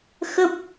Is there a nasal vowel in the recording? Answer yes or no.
no